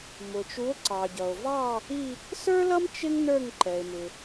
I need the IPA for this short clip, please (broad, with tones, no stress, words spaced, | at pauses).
mʊ˨t͡ʃu˧˥o̯ ǀɑ˨ɟʌ˨o̯vɑ˥˧ | i˥˧ | sə˞˥lʌ˥m t͡ʃɪ˥ŋ nə˞˥˧ŋǃɛ˨e̯mɪ˨